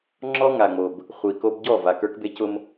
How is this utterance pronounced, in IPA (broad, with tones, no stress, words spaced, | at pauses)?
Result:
ŋ͡ǁɔ˦ŋa˨ŋ͡mo˨b | χʷi˨ko˦b ɟɔ˦˨ va˨kə˞˦k be˦cʊ˦m